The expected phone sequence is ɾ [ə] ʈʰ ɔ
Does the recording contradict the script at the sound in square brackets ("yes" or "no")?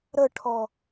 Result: no